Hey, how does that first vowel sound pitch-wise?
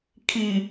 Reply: low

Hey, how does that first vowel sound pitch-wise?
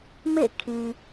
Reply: falling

